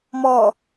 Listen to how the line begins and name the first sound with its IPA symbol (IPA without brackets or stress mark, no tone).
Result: m